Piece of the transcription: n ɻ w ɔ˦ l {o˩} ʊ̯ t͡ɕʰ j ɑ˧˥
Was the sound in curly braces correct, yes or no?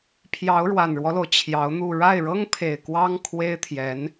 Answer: yes